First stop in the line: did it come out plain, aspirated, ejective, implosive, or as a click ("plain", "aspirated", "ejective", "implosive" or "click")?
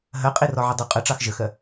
ejective